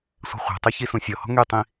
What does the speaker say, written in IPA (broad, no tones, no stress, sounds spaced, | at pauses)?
sʷ ɛ̤ χʷ ɛ̤ tˤ y ç i s ũ sʲ ɔ h ɔ̤ ŋ y tˤ ĩ